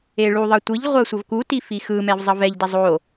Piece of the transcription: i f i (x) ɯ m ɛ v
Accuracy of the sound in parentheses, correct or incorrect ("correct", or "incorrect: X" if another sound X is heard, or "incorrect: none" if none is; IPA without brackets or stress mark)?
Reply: correct